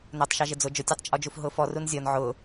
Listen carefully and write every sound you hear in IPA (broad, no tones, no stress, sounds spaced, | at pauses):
n ʊː tˤ ʃ ɑ ʒ ɪ d͡z ʊ d͡ʒ ʊ tʲ ɑ tˤ t͡ʃʼ ɔ d͡ʒ u f ɦ ʊː f ɔ r u n zʲ ɔ n ʕ ʊː